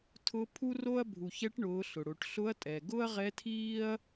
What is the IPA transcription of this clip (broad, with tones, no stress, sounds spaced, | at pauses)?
tʰ ʊ˧˥ pʰ u˥ r o˥ ɐ̯ bʱ u˩ ç ɛ˧˥ ʈ ɳ ʊː˩˧ ɬ ʊ˩ ɽ o˩˧ ʈ ɬ ʊ˧˥ ɐ̯ tʼ ɛ˩ ɡ ʊ˥ ɐ̯ ʁ ɛ˧˥ tʰ iː˥ ɐ̯